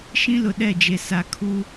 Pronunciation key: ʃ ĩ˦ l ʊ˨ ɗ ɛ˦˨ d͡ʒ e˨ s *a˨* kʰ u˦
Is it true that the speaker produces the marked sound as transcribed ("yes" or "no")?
yes